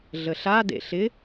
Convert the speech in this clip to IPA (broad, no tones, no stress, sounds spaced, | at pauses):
ɮ ə ɬ a d ḛ ɬ ɪ